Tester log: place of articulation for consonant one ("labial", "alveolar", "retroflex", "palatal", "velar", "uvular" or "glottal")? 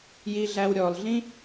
palatal